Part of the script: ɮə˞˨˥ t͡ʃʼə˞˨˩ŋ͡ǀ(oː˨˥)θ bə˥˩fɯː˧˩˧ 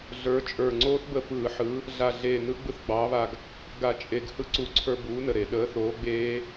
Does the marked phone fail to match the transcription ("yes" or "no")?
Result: yes